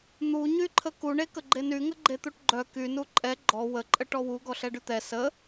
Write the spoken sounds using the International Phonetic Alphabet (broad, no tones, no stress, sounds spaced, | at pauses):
n̪ u ɲ y ǃʰ ə k u ɳ e k ə ɡ͡ǃ e n y ŋ ə ɡ͡ǃ e t̪ u ʈ ɡ͡ǃ œ k y n u ǃʼ ɛ ɡ͡ǃ ɔ w ə ǃʼ ə ʈ ɔ w u ɡ ɔ ɬ ɛ ɖ y t̪ ɛ s ə